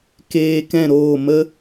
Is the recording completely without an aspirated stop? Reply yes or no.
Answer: yes